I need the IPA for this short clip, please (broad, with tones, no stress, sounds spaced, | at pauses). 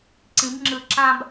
ǀ ĩ˩˧ b ŋ͡ǁ ɯ˨˩ ǁ ã˧ b